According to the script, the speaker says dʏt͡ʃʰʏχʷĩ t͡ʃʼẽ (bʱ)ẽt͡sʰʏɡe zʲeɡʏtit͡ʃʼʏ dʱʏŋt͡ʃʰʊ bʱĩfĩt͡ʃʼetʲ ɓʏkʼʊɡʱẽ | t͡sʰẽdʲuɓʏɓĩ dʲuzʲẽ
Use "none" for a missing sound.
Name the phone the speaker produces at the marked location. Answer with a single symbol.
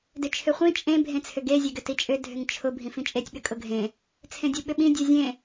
bʱ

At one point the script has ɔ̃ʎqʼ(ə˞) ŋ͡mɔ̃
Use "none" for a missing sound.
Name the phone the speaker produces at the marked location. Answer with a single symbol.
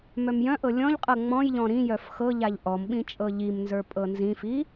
ɤ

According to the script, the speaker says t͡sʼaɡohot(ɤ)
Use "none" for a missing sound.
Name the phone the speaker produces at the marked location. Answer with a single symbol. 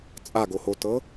ɤ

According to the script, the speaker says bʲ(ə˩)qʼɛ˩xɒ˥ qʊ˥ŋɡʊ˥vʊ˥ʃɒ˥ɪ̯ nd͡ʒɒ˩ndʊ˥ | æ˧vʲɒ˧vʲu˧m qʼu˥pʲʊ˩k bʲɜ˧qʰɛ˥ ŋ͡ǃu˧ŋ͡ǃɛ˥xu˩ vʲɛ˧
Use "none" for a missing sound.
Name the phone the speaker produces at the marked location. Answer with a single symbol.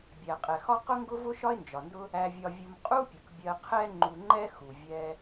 æ˩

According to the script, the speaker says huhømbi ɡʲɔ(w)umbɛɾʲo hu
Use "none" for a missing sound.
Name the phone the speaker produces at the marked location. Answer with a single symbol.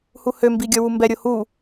w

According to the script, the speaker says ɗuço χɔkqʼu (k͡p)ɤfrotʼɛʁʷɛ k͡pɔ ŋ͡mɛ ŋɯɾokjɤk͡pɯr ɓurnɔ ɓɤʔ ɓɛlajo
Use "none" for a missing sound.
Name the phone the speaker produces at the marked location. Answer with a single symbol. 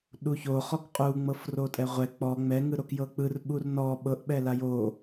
ŋ͡m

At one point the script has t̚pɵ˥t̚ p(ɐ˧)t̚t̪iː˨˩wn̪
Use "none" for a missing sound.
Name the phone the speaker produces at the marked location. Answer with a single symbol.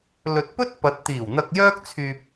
ɐ˨˥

